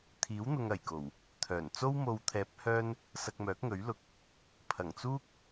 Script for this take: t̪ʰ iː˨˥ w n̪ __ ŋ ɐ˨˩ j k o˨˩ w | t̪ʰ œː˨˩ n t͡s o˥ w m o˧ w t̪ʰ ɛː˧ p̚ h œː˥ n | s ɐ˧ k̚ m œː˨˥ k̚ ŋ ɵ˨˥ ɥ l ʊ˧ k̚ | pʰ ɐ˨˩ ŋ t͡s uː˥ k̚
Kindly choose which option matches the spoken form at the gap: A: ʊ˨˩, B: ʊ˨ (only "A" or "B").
B